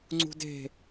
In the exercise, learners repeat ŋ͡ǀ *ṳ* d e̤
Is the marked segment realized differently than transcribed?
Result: no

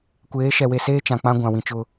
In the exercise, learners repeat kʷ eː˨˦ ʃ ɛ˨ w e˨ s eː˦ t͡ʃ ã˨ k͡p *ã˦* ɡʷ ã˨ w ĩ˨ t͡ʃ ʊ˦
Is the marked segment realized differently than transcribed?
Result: no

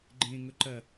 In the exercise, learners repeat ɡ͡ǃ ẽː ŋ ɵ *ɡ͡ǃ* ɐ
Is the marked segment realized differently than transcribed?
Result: yes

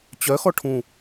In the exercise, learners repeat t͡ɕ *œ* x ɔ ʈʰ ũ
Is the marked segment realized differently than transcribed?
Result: no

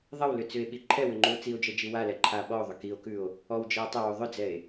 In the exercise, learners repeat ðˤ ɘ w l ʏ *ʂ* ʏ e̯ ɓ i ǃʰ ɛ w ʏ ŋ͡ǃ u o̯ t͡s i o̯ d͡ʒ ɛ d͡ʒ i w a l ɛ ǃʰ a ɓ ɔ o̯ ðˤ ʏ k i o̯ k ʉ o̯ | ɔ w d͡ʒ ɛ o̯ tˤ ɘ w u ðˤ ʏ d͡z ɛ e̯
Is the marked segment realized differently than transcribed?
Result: yes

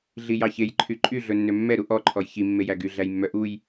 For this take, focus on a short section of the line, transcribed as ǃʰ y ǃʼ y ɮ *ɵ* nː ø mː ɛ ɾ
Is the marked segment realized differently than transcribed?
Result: no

